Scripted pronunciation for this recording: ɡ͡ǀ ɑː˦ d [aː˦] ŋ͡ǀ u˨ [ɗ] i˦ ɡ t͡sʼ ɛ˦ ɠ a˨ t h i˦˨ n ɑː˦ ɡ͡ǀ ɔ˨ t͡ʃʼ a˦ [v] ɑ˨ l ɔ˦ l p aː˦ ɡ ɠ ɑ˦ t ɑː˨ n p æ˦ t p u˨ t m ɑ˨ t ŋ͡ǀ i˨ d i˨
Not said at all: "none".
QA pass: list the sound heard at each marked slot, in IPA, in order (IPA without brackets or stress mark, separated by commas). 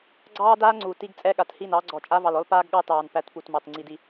aː˦, t, v